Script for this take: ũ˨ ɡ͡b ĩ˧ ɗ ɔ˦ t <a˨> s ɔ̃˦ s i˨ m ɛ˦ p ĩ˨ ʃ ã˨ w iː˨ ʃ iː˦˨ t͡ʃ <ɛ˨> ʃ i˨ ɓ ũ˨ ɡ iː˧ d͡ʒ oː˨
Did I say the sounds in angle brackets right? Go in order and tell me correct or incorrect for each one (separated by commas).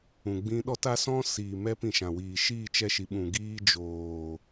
incorrect, incorrect